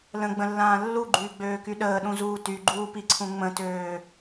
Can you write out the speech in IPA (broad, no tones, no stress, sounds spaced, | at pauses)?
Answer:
l ə̃ ɡ͡b ə̃ lː ãː lː u ɡ͡ǃ yː ɡ͡b øː k y ɗ əː ɗ ũ z uː t y ɡ͡ǃ uː p i ǀʰ ũ ŋ͡m ə̃ t øː